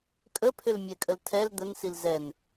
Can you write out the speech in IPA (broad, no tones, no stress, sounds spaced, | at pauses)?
kʼ ə pʰ ʏ l mʲ ɛ kʼ ə l tʰ ɛ l d̪ ə n s i l z ɛ n